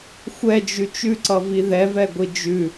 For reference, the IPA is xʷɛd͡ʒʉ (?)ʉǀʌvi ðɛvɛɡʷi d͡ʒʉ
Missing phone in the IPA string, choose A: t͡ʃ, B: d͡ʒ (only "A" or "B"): A